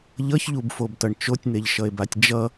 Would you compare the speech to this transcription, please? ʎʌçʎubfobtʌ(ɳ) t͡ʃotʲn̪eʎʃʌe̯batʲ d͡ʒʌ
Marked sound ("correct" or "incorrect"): correct